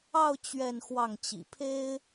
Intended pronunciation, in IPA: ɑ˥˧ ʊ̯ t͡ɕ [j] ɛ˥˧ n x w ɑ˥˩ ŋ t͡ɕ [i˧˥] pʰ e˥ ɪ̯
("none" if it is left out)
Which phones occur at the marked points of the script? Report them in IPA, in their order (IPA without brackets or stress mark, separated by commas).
ɥ, ḭ˨˩